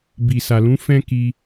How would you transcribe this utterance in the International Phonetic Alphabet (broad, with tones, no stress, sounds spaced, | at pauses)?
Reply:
b i˨ s a˨ l ũ˨˦ f ɛ̃˦ k i˧